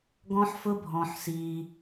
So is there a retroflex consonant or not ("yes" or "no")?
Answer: no